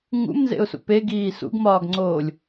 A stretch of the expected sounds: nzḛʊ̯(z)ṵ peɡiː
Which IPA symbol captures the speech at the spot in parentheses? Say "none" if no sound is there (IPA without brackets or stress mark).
s